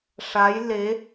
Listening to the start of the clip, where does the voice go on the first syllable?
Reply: rising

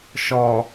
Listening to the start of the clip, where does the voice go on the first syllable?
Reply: low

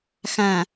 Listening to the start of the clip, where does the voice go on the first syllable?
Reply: low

